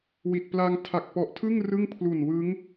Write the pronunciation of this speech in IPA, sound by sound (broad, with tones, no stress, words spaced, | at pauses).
wi˨˩t̚pla˧ŋ tʰa˨˩k̚pɔ˨˩ʔtʰɯ˥˩ŋ rɯ˥˩ŋpʰlu˨˩nwɯ˦˥ŋ